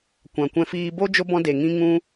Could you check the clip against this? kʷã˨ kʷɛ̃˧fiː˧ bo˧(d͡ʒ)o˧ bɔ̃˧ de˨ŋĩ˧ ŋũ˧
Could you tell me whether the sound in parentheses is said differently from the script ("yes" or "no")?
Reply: no